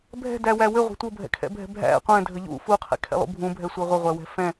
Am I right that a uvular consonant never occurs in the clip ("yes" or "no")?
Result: no